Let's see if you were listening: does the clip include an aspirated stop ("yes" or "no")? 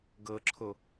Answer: yes